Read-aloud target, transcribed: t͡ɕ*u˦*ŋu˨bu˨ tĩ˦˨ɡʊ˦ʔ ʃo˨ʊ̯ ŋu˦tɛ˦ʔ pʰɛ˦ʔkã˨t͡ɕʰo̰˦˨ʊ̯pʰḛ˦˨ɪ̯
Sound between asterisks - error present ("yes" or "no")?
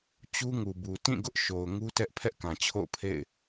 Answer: no